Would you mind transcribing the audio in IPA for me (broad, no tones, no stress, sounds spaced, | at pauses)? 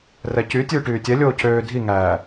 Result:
r ɛ c y tʲ ʉː ʈ yː tʲ ɛ lʲ oː cʰ øː dʱ i ŋ æː